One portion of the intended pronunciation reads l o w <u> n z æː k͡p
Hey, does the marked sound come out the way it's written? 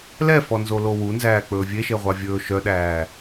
yes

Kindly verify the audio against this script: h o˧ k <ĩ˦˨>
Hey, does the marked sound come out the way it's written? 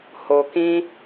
no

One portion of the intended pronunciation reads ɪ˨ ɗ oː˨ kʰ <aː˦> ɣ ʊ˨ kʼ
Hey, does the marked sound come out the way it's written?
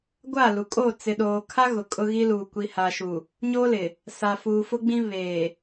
no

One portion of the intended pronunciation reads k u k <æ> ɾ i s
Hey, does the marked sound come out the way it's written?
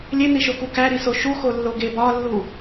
yes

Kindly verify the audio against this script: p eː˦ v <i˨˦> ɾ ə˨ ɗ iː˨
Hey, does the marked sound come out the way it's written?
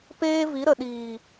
yes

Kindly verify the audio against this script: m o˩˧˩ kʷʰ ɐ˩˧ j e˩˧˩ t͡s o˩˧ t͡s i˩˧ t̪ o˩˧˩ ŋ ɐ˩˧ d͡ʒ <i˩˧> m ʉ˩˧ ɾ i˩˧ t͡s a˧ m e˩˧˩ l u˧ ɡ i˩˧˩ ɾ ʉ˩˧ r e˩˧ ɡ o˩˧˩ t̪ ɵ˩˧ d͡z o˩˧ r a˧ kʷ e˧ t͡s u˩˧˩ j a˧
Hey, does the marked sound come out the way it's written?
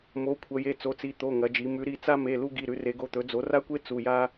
yes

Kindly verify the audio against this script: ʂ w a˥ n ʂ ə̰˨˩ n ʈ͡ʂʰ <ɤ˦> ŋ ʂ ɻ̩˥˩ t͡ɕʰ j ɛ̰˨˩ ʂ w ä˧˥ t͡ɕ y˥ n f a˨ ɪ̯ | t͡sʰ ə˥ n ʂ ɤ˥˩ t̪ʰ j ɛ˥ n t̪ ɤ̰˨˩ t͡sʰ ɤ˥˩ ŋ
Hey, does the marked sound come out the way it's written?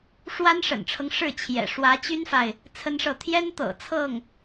yes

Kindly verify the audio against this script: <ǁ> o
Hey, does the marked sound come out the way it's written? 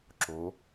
yes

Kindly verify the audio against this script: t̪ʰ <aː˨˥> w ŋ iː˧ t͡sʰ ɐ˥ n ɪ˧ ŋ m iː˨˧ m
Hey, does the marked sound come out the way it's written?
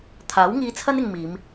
yes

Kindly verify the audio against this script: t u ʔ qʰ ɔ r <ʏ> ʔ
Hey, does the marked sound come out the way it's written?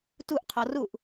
no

